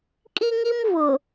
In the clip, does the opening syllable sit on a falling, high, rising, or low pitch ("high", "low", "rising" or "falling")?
high